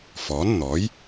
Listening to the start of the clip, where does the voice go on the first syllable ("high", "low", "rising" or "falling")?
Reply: rising